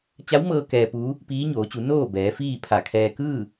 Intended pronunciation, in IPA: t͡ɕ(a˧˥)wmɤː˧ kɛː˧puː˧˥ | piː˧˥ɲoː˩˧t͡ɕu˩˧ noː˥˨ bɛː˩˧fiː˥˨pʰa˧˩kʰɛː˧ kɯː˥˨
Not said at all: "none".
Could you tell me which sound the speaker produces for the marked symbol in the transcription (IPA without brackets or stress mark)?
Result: a˧˥